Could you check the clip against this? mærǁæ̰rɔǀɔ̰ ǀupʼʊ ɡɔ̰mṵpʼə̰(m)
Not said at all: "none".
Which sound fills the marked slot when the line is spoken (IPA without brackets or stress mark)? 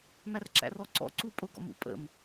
m